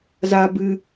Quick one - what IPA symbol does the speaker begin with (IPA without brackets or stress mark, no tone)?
z